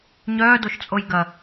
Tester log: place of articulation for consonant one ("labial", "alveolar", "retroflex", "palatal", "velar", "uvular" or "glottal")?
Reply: palatal